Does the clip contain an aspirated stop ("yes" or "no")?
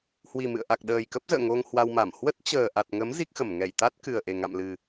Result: no